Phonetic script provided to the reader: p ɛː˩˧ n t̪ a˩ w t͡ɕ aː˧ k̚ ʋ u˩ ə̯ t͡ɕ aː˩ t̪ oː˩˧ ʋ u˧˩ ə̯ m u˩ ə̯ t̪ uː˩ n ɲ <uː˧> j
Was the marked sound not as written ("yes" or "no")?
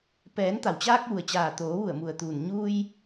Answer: no